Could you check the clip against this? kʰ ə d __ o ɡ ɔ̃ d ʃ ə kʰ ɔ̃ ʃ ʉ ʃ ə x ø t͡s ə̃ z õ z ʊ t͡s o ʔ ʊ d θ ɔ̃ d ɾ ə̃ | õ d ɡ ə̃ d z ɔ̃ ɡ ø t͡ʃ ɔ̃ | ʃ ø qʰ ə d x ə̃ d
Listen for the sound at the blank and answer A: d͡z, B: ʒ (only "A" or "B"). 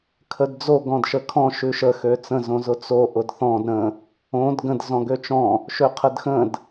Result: A